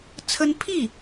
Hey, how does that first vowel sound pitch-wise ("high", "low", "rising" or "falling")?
high